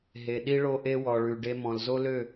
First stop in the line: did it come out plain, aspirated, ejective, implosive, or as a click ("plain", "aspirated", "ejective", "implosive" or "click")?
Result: implosive